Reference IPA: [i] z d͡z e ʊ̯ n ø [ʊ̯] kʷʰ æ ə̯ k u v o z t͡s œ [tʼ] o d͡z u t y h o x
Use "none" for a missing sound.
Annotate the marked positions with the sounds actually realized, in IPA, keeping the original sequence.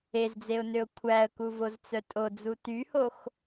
e, ʊ̯, tʼ

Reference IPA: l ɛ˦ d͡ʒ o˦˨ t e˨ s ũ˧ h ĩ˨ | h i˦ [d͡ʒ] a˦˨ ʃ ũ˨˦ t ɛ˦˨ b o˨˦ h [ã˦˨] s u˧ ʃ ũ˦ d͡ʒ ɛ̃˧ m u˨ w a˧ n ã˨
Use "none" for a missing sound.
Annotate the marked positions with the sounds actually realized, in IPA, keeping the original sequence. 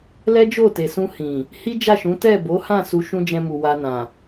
d͡ʒ, ã˦˨

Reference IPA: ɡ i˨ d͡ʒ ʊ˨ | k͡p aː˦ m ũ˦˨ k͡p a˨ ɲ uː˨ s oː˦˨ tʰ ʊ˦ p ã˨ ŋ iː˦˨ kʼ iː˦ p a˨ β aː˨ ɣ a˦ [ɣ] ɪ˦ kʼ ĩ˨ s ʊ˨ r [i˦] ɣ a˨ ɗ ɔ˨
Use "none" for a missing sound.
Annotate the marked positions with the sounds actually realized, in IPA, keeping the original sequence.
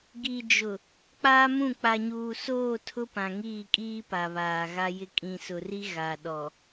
j, i˦

